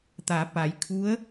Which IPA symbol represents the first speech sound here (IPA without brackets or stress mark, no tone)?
t̪